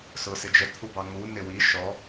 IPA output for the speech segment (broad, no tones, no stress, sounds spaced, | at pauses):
s ʊ s ɪ d͡ʒ ə t̪ʰ u b ɑ ŋ u n ɪ w i ʃ ɔ